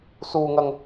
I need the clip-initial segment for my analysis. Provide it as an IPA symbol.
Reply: s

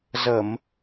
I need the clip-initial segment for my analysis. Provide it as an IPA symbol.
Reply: z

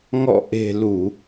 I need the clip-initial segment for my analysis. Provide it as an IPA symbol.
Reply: ŋ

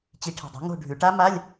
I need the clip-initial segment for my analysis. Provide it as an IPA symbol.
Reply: t͡ɕ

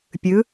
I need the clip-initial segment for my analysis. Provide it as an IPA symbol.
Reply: pʲ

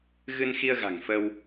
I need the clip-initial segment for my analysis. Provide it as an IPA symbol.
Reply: ɣ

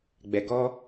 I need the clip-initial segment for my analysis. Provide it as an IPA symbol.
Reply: ɡ͡b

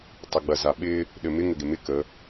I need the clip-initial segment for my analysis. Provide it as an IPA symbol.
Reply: tˤ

